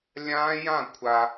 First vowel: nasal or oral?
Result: nasal